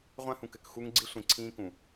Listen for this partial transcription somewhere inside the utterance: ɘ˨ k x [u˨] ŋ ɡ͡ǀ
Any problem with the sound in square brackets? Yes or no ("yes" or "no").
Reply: yes